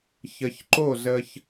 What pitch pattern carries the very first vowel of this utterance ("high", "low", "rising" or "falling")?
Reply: low